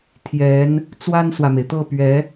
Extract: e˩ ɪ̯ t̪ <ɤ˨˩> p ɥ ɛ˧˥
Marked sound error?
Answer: yes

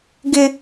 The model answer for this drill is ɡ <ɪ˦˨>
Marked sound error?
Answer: yes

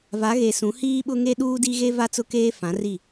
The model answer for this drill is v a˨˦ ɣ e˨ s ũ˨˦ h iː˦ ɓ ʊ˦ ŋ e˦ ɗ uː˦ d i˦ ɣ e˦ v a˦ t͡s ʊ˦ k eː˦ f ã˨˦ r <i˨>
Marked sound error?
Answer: yes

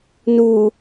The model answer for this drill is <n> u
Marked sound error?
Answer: no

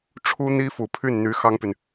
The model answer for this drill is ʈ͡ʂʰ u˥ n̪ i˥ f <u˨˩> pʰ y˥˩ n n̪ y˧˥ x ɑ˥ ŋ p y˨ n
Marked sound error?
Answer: no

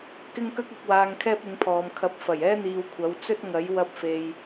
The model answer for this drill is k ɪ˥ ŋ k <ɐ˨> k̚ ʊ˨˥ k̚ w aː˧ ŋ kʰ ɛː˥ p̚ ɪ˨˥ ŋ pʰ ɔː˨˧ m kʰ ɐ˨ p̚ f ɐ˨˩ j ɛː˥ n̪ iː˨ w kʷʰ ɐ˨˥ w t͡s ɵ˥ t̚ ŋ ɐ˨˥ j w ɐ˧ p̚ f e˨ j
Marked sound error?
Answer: yes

